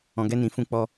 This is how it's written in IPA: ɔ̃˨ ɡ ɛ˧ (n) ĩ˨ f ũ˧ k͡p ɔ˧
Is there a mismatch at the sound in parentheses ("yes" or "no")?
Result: no